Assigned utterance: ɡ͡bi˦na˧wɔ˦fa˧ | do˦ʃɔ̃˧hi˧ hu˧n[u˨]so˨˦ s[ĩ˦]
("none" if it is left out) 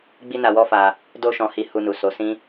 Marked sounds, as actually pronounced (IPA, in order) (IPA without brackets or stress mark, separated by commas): u˨, ĩ˦